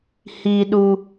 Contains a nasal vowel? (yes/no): no